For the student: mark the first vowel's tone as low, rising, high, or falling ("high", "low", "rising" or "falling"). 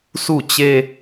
falling